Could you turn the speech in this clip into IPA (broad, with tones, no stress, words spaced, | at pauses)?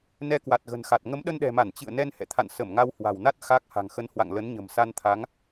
nɛ˧kwa˨˩t̚ɣə̤˨˩nxa˨˩t̚ ŋə˨˦mɗə˧nɗɛ̤˨˩ma˧˩n t͡ɕɨ̰˧˨ə̯ nɛ˧nhɛ̰˧˨t̪ʰa̰˧˨n sə˧˩mŋa˧whwa̤˨˩wna˦˥t̚ xa˦˥k̚ ha̤˨˩ŋxə˨˦nhwa̰˧˨ŋ lə˨˦nɲə̤˨˩msa˧nt̪ʰa˨˦ŋ